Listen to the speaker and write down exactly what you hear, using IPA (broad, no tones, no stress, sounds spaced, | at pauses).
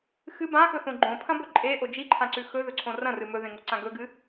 x ɨ b ã x ɵ θ õ ɡ͡ǃ õ pʰ ɐ̃ b ɵ ǃʼ e ʔ o d͡ʒ i ǃʰ ã ǀ ʉ x ɵ ð ɵ ǀʰ õ r ɐ̃ r ɨ m ɵ ð ẽ ŋ o ǀ ã ɡ ɵ ɡ ɨ